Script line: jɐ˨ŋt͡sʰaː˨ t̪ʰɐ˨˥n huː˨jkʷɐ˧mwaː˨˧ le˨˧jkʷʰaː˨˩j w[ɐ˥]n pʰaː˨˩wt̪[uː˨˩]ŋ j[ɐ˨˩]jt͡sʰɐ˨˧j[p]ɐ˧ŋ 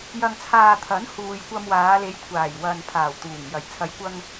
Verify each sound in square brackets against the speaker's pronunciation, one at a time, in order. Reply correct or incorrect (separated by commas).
incorrect, correct, correct, incorrect